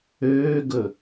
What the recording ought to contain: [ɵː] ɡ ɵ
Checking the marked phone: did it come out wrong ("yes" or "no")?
yes